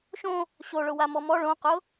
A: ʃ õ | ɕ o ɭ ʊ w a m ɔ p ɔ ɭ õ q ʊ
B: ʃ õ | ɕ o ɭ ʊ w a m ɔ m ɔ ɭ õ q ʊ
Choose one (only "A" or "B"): B